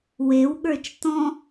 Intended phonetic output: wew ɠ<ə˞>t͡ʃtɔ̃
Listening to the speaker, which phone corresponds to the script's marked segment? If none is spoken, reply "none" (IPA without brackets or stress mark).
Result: ə˞